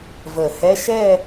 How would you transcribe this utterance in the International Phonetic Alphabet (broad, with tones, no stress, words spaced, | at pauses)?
və˨˩˦hɛ˧˥˧ ʃɛ˦˨